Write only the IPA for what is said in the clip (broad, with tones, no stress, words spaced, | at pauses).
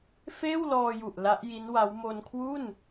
feː˥˩wlɔː˧ju˨˩ʔ la˦˥ʔji˦˥nwa˦˥w mo˧nkʰwu˥˩n